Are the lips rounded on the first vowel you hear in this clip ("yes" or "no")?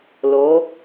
yes